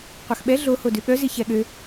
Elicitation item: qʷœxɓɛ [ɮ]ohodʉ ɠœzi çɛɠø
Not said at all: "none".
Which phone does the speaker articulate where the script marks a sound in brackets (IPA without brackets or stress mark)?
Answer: ɮ